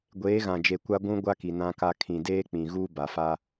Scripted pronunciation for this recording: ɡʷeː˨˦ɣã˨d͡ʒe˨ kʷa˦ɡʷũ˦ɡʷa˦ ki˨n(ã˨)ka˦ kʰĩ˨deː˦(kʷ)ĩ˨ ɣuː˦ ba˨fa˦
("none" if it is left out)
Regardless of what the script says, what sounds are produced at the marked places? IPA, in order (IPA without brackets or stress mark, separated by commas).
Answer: ã˦, k͡p